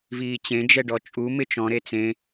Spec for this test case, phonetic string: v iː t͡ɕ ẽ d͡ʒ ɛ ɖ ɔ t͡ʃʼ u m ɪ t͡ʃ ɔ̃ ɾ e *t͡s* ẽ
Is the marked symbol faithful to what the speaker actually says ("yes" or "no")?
yes